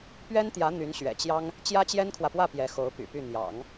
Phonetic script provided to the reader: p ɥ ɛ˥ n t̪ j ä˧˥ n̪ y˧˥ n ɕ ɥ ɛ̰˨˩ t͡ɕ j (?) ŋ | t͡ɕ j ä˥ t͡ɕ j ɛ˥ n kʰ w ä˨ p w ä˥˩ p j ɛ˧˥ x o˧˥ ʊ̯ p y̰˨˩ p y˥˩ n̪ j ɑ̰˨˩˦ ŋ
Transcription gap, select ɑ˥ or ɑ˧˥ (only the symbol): ɑ˥